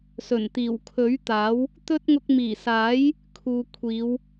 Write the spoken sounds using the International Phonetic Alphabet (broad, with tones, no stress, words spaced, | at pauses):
sɵ˨˩nt̪iː˨˩w kʰɵ˨˥ɥt̪aː˨˥w | t̪ɵ˥t̚ ŋʊ˧k̚miː˨˩saː˨˥j | kʰuː˨kʷʰiː˨˧w